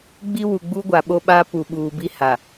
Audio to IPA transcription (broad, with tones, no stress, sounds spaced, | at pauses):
ɡ͡b i˦ w u˨ ɡ͡b u˦ ɡʷ a˨ ɓ o˦ ɓ a˦ p u˨ ɓ uː˨ b i˦ h a˨